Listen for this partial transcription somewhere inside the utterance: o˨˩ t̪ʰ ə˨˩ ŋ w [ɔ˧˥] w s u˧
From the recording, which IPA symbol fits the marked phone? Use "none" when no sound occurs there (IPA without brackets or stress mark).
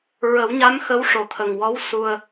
ɔ˧˥